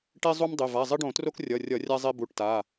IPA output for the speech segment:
ʈe˥zˤu˥m dˤɘ˩˧˩ va˩˧˩zˤɘ˥ɖõ˧˩˧tro˥k rʲʌ˩˧˩rʲʌ˧˩˧ rʲa˥zˤe˥bu˩˧˩ʈta˩˧˩

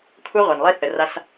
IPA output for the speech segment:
kʷʰɛ˦ʁʷa˨nlˠi˦θə˨ ra˦s

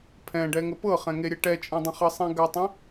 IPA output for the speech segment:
pʰɛ̃ɖɛ ŋəpɤχɛ̃ ŋeɾʲɛʈɛt͡ʃʼĩ dˤə̃χɤsˤẽ ɡatˤẽ

